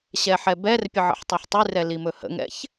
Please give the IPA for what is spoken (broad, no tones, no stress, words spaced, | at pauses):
ɕɛħɛbɛrpʲə ʕə̰ħtˤɛħtˤʉrɛ limɵhə̰ŋɛ̰ç